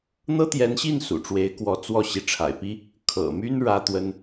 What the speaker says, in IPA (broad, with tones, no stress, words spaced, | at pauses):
n̪ɤ˥t̪jɛ˧˥nɕi˥˩n sṵ˨˩ʈ͡ʂwe˧˥ɪ̯ kwɔ˧˥ t͡swɔ˥˩ ɕi˧˥ʈ͡ʂʰa̰˨˩ɪ̯pi˥ | kʰɤ̰˨˩my˥n ɻä˥t̪wə˥n